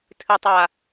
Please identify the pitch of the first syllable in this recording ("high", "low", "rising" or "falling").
low